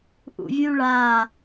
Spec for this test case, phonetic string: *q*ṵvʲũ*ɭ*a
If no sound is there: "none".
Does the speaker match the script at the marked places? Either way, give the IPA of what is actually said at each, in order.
ʔ, ɭ

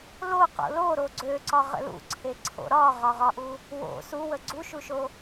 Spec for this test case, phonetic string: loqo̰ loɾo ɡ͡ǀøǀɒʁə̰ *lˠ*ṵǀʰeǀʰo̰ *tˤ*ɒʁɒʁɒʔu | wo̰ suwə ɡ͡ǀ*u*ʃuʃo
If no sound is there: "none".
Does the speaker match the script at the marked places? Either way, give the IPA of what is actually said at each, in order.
l, ɾ, u

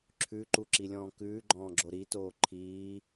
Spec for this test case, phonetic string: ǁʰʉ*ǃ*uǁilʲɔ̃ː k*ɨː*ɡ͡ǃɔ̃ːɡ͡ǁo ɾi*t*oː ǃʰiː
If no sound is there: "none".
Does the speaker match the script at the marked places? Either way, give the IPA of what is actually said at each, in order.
ǃ, ʉː, t

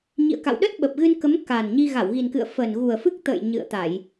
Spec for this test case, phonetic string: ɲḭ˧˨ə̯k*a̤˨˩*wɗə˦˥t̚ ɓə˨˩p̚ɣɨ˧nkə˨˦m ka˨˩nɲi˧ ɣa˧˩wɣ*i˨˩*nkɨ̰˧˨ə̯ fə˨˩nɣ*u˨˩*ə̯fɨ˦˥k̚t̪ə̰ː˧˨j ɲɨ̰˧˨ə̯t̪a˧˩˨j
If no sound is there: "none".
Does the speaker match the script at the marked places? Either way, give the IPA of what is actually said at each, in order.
a̰˧˨, i˨˩, u˨˩

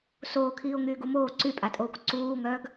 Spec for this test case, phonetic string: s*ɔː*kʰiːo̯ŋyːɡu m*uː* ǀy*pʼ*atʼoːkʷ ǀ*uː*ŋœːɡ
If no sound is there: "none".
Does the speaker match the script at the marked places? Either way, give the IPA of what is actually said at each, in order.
oː, oː, pʼ, uː

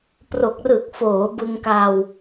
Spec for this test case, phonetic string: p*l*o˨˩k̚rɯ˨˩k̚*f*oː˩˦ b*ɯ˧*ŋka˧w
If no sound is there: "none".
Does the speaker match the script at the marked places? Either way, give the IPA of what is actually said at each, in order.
r, f, ɯ˧

